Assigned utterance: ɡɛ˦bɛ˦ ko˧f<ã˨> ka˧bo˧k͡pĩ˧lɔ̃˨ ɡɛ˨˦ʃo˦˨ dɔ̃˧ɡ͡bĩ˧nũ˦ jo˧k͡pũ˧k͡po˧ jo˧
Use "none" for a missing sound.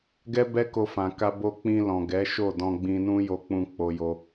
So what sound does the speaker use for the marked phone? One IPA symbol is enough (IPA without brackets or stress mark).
ã˨